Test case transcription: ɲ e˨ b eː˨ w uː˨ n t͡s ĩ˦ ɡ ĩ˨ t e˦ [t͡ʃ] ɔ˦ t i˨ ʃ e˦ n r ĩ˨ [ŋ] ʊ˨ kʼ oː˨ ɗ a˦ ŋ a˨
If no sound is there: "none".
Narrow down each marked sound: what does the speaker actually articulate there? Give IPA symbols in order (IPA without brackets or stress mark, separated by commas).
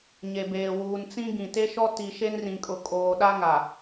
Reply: ʃ, kʼ